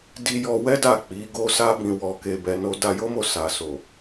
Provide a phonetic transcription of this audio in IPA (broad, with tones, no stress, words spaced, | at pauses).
di˧jɔ˧wɛ˦da˦˨ k͡pi˨˦ɡo˦sa˦bĩ˧ wɔ˧ke˧bɛ˧no˦ da˧jo˦mo˦˨ sa˨ so˨